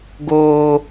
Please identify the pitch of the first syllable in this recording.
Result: high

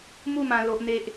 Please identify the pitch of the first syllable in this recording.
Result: falling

